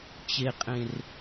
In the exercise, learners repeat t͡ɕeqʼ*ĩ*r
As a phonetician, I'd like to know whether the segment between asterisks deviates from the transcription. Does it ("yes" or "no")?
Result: yes